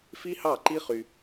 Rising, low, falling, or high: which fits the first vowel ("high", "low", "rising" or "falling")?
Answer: high